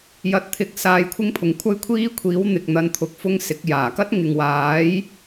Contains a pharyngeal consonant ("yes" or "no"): no